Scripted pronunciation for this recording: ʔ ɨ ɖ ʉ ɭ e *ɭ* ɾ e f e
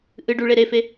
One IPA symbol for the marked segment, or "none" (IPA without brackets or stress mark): none